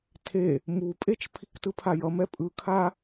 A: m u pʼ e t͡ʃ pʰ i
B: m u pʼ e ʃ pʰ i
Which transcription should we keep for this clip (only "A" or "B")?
A